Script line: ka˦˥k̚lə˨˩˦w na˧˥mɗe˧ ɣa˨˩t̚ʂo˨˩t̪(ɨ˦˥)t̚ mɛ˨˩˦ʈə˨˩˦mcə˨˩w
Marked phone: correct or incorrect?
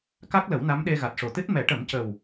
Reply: correct